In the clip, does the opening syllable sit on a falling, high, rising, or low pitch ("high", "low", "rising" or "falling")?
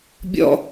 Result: high